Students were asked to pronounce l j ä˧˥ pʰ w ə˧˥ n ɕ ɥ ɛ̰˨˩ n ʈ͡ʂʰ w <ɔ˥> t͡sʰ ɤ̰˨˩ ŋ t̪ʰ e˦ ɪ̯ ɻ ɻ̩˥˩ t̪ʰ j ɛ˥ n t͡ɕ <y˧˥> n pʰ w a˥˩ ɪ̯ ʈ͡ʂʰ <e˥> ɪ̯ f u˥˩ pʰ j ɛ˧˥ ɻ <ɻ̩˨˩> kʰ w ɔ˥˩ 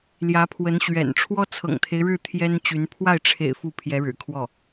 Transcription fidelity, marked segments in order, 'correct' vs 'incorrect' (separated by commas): correct, correct, incorrect, correct